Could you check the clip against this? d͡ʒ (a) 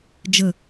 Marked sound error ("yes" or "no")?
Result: yes